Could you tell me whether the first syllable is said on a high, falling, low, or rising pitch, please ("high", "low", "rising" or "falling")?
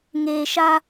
low